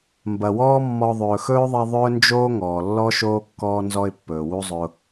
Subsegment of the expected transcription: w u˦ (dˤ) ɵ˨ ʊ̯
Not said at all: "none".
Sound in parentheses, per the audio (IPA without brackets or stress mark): zˤ